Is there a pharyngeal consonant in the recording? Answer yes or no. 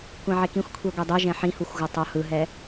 yes